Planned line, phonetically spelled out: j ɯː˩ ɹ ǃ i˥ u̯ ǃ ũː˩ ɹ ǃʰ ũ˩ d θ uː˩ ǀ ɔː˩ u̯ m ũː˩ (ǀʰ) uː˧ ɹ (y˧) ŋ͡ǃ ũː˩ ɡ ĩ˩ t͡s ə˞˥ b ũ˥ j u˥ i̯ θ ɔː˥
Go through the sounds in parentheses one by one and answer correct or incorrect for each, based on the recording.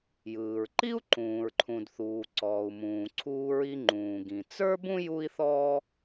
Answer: correct, incorrect: i˧

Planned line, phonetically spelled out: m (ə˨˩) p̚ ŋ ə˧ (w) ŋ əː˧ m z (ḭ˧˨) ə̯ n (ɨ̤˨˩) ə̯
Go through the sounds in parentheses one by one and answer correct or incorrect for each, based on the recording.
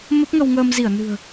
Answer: incorrect: ə˦˥, correct, incorrect: i˧˩, correct

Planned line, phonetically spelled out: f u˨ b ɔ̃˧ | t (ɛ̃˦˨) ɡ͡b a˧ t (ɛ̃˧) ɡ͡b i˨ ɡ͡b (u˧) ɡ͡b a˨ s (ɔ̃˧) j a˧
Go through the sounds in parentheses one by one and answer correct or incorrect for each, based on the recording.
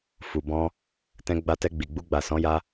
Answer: incorrect: ɛ̃˧, incorrect: ɛ˧, correct, incorrect: ɔ̃˨˦

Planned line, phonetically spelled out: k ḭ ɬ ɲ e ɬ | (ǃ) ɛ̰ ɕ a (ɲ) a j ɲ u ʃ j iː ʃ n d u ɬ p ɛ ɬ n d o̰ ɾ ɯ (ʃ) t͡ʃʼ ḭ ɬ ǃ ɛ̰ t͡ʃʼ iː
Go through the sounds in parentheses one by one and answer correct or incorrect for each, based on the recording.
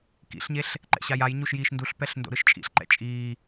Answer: correct, incorrect: j, correct

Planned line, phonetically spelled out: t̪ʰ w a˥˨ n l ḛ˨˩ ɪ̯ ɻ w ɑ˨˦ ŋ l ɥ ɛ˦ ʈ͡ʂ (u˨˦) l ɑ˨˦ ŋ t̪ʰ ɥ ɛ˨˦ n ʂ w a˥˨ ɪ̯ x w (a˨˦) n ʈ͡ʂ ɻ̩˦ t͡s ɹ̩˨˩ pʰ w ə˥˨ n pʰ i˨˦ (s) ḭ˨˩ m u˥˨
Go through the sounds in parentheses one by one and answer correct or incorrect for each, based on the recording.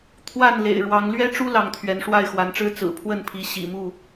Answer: incorrect: u˦, correct, incorrect: ɕ

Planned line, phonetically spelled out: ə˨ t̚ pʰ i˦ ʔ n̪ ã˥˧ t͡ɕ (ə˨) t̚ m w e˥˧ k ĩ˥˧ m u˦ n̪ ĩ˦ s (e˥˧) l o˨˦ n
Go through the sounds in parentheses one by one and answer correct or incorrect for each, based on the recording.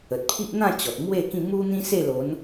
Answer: incorrect: ɔ˨, correct

